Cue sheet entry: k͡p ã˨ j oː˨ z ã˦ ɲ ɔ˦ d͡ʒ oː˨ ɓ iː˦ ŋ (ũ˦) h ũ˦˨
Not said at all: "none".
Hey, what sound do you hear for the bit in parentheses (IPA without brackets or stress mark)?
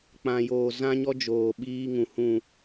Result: ũ˨